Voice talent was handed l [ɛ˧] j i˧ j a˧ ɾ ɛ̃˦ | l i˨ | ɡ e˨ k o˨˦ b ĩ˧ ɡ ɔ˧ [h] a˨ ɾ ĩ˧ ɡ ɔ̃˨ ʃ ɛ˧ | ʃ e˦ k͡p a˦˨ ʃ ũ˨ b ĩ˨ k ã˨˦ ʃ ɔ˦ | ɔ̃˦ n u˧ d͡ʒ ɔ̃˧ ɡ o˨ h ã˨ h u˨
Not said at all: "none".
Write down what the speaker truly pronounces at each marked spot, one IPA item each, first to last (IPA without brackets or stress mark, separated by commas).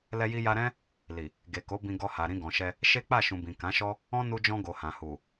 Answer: ɛ˧, h